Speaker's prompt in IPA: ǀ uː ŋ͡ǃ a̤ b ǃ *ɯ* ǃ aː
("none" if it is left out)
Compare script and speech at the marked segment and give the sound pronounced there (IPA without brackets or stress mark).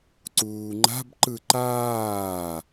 ɯ